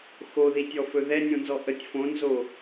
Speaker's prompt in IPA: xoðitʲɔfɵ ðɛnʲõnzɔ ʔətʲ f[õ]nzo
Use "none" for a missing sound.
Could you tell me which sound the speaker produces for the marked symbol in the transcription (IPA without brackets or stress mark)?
õ